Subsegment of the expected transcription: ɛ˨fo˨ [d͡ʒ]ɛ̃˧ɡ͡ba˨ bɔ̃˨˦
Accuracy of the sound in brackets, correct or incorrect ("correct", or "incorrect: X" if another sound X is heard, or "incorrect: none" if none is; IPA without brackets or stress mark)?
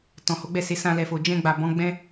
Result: correct